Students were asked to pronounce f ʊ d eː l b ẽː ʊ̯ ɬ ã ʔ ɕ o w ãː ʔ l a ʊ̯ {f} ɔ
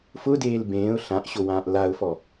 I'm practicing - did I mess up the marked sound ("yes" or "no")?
no